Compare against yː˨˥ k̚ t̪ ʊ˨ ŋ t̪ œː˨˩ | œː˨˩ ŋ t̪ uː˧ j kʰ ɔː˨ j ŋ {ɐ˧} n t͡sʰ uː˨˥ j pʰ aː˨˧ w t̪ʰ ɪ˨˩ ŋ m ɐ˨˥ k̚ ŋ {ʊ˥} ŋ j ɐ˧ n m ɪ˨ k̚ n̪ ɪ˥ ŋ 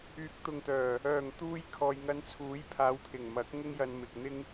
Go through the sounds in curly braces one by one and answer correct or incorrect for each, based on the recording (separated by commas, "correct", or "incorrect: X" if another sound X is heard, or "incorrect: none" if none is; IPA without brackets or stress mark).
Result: correct, correct